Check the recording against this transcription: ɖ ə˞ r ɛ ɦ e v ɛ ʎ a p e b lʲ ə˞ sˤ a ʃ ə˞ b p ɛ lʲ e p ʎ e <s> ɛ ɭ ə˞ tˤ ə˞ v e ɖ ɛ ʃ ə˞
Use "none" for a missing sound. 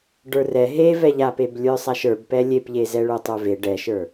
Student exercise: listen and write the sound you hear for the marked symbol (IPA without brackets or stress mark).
z